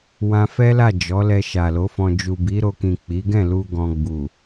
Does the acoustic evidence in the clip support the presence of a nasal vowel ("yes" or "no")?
yes